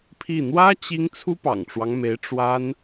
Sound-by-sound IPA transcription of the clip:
pʰi˥˩ n̪wä˥ t͡ɕi˥ŋ t͡sʰu˥pɑ̰˨˩ŋʈ͡ʂwɑ˦ŋme˧˥ɪ̯ ʈ͡ʂwa˥n

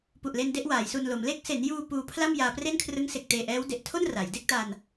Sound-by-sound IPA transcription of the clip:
pu˨˩ʔle˧n de˥˩ʔwaː˩˦jsu˧nlo˩˦m le˦˥k̚se˩˦njuː˧ puː˧pʰla˥˩m jaː˧pre˥˩nkʰrɯ˦˥ŋ se˨˩k̚teː˨˩ʔɛː˦˥w de˨˩ʔtʰo˥˩n ra˩˦j de˥˩k̚ta˧n

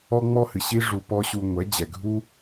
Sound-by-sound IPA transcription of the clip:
ɔ˦ŋ͡mɔ˦hɨ˨ɕi˦ ʐu˧pɔ˦ ɕu˧ŋʷɛ˨˦d͡ʑɛ˨ɡʱu˦

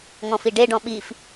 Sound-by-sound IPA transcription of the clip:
ŋɔ̃fiɖe ɖɔ̃ɓif

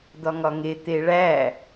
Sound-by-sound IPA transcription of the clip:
d̪ɒŋɒŋe t̪eɭæ

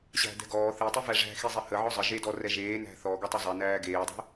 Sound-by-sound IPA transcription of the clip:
ɕæ̤dɛ̤ ɡɔː θitˤi væʐæ̤ xizˤehə ʕɔzˤə ʒedɔ rɛʒeːnæ̤ θɔ ɡɛtˤezˤɛnæː ɡeːdˤɛ̤

